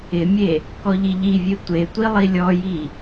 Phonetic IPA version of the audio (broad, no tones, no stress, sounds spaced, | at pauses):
ɪ mʲ e | k ɔ ʎ i ʎ i vʲ e tʷ e tʷ i lˠ i lʲ ɔ j i